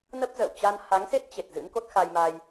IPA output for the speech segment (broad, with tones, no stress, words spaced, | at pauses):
nə˦˥p̚zə̰ː˧˨wt͡ɕa˧n ha˨˦ŋse˦˥t̚t͡ɕe˨˩t̚ zɨ̰˧˥n ko˦˥t̚xa˧jma˧j